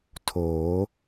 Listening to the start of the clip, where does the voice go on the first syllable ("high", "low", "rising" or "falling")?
rising